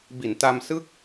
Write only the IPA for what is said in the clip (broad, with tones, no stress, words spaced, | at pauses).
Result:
bi˩˦nta˧m sɯ˥˩k̚